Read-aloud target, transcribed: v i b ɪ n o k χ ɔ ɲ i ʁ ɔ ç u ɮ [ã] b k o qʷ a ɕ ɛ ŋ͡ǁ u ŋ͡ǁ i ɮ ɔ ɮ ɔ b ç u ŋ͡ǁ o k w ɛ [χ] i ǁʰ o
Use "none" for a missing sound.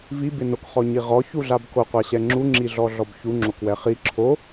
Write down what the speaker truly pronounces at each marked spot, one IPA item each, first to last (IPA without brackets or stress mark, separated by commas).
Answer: a, χ